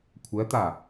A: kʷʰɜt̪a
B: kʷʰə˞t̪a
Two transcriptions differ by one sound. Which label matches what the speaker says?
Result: A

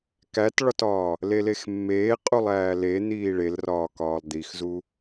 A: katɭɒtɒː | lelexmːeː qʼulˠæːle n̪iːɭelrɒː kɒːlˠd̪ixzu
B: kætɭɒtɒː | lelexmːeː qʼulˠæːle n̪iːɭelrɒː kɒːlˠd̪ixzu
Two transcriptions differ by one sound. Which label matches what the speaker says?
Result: B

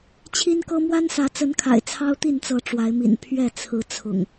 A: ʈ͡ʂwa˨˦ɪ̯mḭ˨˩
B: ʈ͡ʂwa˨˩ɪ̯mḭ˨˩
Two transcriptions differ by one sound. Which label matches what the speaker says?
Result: A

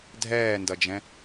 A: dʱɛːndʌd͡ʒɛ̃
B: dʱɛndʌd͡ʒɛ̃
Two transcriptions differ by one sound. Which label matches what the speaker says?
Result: A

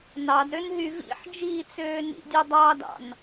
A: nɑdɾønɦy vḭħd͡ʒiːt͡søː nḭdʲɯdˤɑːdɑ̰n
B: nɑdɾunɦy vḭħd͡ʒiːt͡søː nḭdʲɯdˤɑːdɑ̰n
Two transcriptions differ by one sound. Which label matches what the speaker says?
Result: A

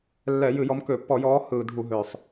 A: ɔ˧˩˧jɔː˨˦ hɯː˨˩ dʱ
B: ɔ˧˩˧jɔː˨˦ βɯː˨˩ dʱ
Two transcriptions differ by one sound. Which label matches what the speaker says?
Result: A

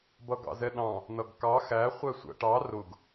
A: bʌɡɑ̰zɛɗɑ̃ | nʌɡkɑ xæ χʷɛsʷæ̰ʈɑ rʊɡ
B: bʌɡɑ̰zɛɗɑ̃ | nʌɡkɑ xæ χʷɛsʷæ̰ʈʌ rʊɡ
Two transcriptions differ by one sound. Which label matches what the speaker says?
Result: A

